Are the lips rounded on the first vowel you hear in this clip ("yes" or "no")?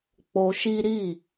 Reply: yes